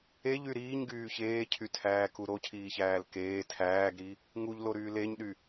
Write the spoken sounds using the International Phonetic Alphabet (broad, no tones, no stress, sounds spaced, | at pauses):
e ʎ y ɾ iː ɲ ɡ yː ç eː cʰ y tʰ æː k u ɾ o cʰ iː ç æː l k eː tʰ æː ɡ ɾ i | ŋ u ʎ l o ɾ yː l e ɲ ɗ y